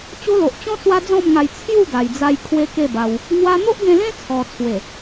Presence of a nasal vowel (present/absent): present